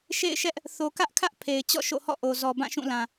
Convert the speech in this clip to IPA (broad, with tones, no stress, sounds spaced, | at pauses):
ʃ ḛ˦˨ ɪ̯ ʃ ɛ˦ ʔ | θ o˨ k ä˦ ʔ kʰ ä˦ ʔ pʰ e˨ ɪ̯ t͡ɕ ɔ̰˦˨ ʃ o̰˦˨ h ɔ̰˦˨ ʔ o˨ z ɔ˨ b ã˦˨ ʃ ũ˦˨ l ã˨